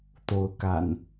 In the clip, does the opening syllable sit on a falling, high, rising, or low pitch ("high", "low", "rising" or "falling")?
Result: rising